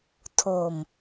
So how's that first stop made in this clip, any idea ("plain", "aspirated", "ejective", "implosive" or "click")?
aspirated